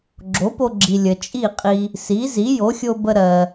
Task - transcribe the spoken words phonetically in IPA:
ɡ͡ǁ o˩˥ p o˧ ɡ͡ǁ i˩ lʲ ə˩ t͡ʃʼ i˥˩ qʼ i˧ | s i˩˥ z i˩˥ j o˩˥ xʲ o˧ b ə˧ ɾ ɜ˩

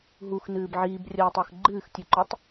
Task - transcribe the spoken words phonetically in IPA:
ɦ u x n ɨː b ʕ iː b rʲ ɐː tˤ o x ɡ͡ǃ ɨː x tʲ ʉ ǃ ɵ tˤ

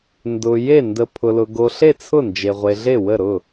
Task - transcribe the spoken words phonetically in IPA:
n d ʊ˧ j e˥˩ n d ə˧ pʰ ʊ˧ l ʊ˧ ɡ o˧ ɬ e˥˩ t͡sʰ ʊ˥˩ n d͡ʒ e˧ ʁʷ e˧ ɮ e˥˩ w ə˥˩ ɾ ʊ˥˩

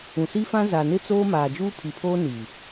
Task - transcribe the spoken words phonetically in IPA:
ũ˨ s i˦ f ã˦ z a˨ n ɪ˦ t͡s oː˦ m aː˨ d͡ʒ uː˦ pʰ i˨ pʰ oː˦ n i˨

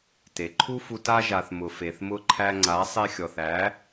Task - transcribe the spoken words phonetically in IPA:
t e˨ ǃʰ u˦ f u˧ t a˧ ʒ a˨ θ m ʊ˨ f e˨ θ m ʊ˧ ǃʰ æ˧ ŋ͡ǀ a˨˦ sˤ e˧ xʲ ɔ˨ θ æ˨˦

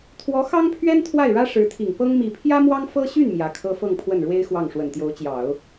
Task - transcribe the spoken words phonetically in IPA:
t̪ʰ w ɔ˧˥ x ɑ˥ ŋ pʰ ɥ ɛ˥ n t̪ʰ w a˥˩ ɪ̯ ɻ ä˥ ʂ ɻ̩˧˥ t̪ʰ i˨˩ ŋ p ɤ˥ ŋ m i˨˩ pʰ j ä˥ m w ɑ˥ ŋ f ɤ˥ ɕ y˥˩ n m j ä˧˥ kʰ ɤ˥ f ɤ˥˧ ŋ pʰ w ə˥˩ n ɻ w e˥ ɪ̯ x w ɑ˥˩ ŋ ʂ w ə˨˩ n t̪ j o˧˥ ʊ̯ t͡ɕ j ɑ˨˩˦ ʊ̯

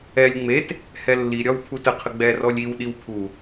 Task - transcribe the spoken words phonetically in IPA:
ɛ lʲ ŋ͡m e t | h ɛ lː i ɾʲ ɒ w pʰ u t ə qʰ ə ɡ͡b ɛ r ɔ lʲ i w ɗ i w pʰ u

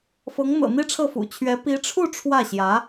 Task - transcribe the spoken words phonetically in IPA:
f ɤ˧˥ ŋ n̪ ɤ̰˨˩ n̪ i˥ ʈ͡ʂʰ ɤ˥˩ f ṵ˨˩ t͡ɕʰ ɥ ɛ˧˥ p i˧˥ ʈ͡ʂʰ u˥˧ ʈ͡ʂʰ w ä˥˩ ɕ j ä˧˥

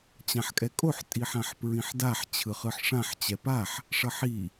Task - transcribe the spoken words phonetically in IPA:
t͡ɕ ã ħ kʼ ɛ kʼ o ħ tʼ i ħ ã ħ p ɹ ĩ ħ d a ħ t͡ɕʰ ɯ χ ɯ ħ ʂ ã ħ t͡ɕ ɛ p a ħ | ʂ ʌ ħ i

